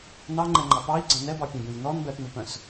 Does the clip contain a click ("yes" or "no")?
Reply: yes